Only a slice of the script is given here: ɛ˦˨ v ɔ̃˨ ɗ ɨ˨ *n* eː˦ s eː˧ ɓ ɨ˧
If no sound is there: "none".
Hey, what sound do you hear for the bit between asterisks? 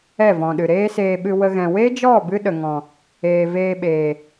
ɾ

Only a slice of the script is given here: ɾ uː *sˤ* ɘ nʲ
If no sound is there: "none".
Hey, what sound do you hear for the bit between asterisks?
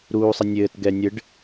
sˤ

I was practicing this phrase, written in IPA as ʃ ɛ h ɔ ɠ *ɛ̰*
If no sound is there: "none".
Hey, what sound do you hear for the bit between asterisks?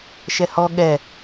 ɛ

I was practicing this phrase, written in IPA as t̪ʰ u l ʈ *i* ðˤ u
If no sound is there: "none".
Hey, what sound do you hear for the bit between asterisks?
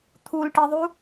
i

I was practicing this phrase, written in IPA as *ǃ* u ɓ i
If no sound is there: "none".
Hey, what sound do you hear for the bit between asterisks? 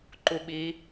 ǃ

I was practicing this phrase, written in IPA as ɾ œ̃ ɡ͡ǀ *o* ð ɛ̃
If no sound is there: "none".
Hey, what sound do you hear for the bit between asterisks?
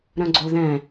o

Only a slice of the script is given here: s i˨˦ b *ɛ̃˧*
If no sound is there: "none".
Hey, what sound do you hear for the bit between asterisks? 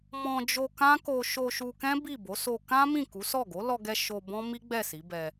ɛ˧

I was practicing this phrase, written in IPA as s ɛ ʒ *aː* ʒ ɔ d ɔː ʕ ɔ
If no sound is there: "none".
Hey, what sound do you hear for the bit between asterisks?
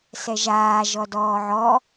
aː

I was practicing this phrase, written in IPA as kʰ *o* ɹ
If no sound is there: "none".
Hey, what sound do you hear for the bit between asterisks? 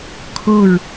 o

